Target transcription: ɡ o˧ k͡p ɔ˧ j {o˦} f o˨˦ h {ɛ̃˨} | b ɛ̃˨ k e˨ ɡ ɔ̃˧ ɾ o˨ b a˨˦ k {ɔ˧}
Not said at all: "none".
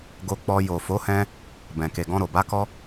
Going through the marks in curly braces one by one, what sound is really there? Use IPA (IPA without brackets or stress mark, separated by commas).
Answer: o˨, ɛ̃˧, ɔ˧